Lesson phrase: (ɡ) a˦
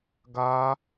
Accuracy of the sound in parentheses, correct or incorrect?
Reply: correct